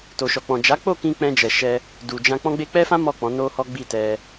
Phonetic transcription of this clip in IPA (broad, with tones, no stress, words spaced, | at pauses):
to˨ʃɔ˨k͡pɔ̃˨ d͡ʒa˨˦k͡po˦˨kĩ˧ k͡pɛ̃˧d͡ʒɛ˨ʃɛ˧ | du˨d͡ʒã˧ k͡pɔ̃˧ɡ͡be˧k͡pɛ˦fã˦ mɔ˦˨k͡pɔ̃˨˦no˦hɔ˦ ɡ͡bi˦˨tɛ˧